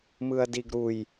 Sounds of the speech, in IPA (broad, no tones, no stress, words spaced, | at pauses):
mɯɐ̯diɡɾuj